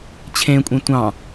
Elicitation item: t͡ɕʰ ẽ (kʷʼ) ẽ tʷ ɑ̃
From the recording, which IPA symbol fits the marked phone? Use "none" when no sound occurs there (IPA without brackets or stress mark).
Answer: kʷʼ